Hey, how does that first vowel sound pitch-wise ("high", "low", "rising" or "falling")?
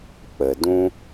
low